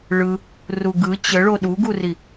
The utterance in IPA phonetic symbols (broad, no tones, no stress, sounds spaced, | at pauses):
ɭ ɯ | r u ɡ ɯ t͡ɕ ə ɭ o ɗ u ɡ u r i